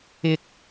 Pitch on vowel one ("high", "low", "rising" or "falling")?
high